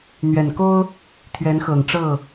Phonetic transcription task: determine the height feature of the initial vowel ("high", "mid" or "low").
mid